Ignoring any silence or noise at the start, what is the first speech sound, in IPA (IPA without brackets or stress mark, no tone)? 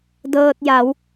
d